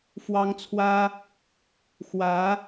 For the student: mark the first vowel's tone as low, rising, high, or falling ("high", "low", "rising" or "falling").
high